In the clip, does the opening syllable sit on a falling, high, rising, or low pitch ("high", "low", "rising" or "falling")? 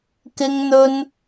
high